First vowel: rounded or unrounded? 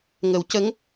unrounded